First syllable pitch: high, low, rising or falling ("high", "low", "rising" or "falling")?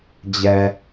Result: low